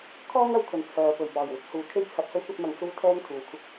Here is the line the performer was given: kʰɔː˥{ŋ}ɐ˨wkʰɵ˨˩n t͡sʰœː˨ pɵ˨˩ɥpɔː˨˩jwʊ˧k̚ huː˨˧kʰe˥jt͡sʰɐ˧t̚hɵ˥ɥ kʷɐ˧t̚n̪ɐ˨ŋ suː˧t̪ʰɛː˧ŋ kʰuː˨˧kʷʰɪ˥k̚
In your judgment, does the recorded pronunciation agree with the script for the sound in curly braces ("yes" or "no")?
yes